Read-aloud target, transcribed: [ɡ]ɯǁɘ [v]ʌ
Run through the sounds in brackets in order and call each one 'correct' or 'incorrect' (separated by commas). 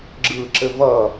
incorrect, correct